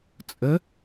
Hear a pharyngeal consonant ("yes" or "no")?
no